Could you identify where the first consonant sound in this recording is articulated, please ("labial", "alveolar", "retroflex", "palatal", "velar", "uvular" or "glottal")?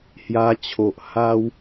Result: glottal